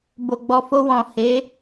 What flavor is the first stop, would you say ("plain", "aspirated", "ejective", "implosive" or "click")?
plain